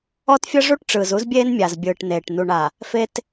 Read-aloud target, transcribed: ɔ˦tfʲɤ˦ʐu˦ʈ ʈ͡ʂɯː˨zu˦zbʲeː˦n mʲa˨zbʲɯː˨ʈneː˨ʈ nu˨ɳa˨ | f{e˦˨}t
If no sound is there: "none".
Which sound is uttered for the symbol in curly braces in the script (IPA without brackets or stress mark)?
e˦